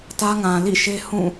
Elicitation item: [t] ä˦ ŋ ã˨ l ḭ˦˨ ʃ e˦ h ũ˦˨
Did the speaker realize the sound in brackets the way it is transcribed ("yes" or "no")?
yes